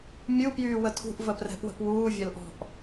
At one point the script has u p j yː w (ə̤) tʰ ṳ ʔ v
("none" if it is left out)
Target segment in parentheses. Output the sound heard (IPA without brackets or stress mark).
ə